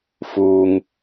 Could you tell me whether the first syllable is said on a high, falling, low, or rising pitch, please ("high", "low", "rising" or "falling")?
low